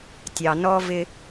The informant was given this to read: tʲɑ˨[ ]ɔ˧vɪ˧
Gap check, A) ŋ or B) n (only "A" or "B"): B